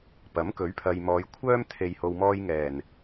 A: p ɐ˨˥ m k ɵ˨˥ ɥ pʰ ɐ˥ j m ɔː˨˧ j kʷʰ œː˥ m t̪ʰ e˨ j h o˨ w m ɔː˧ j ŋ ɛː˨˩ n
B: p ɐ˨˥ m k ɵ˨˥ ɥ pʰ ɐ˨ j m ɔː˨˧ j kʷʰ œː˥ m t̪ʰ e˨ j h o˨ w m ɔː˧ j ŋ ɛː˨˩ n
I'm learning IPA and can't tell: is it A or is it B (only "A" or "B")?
B